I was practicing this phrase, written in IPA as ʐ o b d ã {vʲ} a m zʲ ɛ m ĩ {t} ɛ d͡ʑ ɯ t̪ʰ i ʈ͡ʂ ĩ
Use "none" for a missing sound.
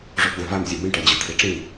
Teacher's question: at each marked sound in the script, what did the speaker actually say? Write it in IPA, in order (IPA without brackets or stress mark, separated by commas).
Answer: v, ʈ